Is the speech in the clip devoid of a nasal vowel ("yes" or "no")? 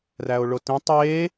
no